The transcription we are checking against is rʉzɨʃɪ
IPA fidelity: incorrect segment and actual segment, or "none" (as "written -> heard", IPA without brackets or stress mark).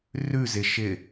ɨ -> ɪ